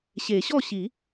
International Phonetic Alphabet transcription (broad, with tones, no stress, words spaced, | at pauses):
ɕe˨˩˦ɕɔ˥˨ɕi˨˩˦